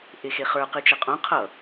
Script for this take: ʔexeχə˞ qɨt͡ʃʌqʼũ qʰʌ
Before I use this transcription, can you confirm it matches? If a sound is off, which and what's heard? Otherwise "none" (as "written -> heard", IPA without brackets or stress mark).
none